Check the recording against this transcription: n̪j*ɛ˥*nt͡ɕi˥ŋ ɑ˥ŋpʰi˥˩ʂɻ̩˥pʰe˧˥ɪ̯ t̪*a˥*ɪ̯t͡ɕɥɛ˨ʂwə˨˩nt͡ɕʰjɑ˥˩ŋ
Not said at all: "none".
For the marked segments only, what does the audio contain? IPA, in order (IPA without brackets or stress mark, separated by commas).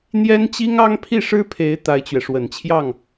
ɛ˥, a˥